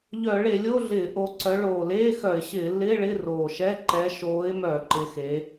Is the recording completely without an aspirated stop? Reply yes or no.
yes